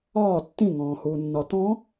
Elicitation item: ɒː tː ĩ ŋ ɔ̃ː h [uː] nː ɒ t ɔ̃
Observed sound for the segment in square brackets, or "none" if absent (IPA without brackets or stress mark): uː